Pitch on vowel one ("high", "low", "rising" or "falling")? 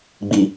low